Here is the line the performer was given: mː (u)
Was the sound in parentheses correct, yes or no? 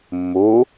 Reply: yes